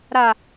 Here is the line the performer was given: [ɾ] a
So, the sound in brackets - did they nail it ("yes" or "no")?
yes